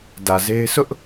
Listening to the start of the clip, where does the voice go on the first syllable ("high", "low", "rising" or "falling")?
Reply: low